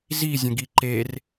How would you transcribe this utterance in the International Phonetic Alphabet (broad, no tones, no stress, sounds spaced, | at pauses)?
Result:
z i zʲ ə̃ ɡ i ǃ e r